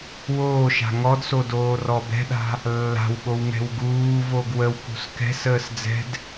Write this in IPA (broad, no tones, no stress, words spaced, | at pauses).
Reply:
woːʃa̤ ŋɔdso doːrɔbɛ̤ɗa̤ | lːa̤wɠow ŋɛ̤wɡuːvoɡ wəwkṳs kɛ̤səːs d͡zɛ̤d